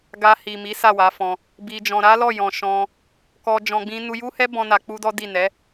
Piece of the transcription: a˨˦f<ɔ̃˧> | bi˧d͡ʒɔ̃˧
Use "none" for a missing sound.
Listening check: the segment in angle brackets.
ɔ̃˧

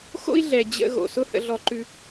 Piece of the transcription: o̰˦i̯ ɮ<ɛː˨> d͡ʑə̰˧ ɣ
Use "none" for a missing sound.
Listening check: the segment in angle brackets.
ɛ˨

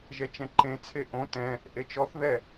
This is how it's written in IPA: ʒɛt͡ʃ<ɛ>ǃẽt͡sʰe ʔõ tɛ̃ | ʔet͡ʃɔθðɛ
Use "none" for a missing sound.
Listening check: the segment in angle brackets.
ɛ̃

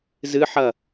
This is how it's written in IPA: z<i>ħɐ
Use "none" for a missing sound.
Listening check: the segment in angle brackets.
ɨ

